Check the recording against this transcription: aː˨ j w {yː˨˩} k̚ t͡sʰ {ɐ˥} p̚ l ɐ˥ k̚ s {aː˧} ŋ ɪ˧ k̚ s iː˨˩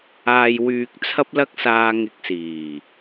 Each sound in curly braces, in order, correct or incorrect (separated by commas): incorrect, correct, correct